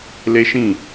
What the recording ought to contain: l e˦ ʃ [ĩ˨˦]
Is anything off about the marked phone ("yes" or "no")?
yes